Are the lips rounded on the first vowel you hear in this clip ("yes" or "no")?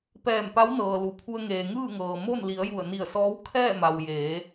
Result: no